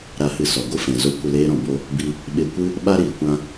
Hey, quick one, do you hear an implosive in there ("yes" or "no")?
yes